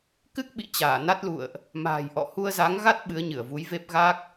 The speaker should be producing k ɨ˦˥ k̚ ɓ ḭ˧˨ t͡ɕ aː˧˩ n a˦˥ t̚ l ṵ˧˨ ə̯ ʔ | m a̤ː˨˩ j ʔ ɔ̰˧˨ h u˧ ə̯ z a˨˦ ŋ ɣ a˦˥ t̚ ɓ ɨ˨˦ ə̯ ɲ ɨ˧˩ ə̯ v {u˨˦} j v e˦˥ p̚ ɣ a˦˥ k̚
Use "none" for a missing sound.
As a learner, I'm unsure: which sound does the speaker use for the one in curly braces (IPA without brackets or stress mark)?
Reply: u˨˦